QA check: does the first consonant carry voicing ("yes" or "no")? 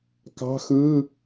no